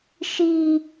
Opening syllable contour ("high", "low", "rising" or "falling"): high